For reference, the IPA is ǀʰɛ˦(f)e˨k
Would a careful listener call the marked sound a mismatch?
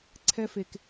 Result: no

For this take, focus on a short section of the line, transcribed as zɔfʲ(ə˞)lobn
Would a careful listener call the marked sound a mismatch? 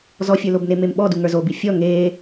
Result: no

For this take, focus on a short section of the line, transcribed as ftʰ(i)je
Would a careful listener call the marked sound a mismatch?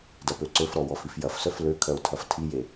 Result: no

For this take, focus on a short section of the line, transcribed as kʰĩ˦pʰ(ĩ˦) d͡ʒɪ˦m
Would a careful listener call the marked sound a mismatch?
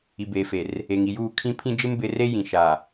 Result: no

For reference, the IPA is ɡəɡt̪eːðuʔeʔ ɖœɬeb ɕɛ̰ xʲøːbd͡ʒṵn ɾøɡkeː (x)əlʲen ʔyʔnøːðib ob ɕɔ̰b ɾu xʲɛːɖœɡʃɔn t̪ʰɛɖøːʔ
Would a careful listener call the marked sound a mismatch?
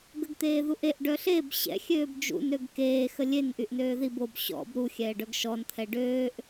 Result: no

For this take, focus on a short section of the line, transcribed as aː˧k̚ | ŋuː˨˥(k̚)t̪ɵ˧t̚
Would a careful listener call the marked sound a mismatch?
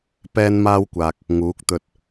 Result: no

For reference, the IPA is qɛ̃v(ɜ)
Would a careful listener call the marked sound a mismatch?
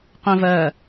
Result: no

